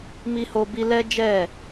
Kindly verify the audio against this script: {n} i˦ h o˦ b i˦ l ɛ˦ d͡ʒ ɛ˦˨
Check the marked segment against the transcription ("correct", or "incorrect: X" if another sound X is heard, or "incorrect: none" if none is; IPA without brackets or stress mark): incorrect: m